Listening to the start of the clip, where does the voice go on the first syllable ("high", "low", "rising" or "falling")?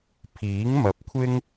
rising